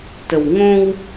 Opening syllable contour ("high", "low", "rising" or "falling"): low